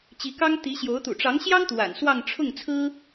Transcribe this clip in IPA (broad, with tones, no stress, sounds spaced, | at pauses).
t͡ɕ i˧˥ k ɑ˥ ŋ t̪ i˧˥ ɕ j o˧˥ ʊ̯ t̪ ṵ˨˩ ʈ͡ʂ ɑ˧˥ ŋ ɕ j ɑ˥ ŋ t̪ w a̰˨˩ n s w ɑ˥˧ ŋ ʈ͡ʂʰ ʊ˥˩ ŋ t͡sʰ ɹ̩˥